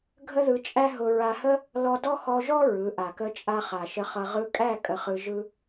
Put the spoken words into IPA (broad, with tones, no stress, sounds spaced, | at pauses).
ɡʱ ə˦ ð ɯ˧ t͡ʃʼ æ˦ ɦ ʊ˧ ɹ a˧ h ə˦ | l ɔ˧ d ɔ˦ x ɔ˧ ʒ ɔ˦ ɹ ɯ˨˦ ʔ a˨ k ə˦ t͡ʃʼ a˦ χ a˨ ʃ ə˧ χ ʌ˧ ʁ ɯ˧ kʼ æ˦˨ kʼ ə˧ χ ɯ˧ ʒ ɯ˦